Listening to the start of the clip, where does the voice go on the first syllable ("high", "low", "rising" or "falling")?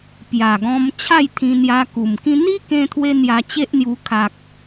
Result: low